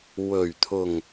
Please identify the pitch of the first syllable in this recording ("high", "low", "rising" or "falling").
low